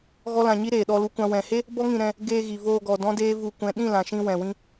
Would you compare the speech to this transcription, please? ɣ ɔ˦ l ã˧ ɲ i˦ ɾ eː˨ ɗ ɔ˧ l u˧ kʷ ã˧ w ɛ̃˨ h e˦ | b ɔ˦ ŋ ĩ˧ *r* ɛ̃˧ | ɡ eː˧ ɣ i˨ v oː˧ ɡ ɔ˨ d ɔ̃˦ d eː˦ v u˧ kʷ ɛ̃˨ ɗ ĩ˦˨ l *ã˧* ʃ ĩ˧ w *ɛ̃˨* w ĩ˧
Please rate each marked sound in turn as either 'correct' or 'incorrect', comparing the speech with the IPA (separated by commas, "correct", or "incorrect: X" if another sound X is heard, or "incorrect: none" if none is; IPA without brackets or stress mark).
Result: incorrect: ɾ, incorrect: ã˨, correct